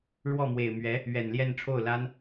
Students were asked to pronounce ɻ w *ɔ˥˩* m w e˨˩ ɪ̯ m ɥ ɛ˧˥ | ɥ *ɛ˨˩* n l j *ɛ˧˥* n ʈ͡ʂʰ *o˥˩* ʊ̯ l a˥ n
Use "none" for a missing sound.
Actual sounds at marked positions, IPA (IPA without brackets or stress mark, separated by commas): ɔ˥˩, ɛ˨˩, ɛ˥˧, o˥˩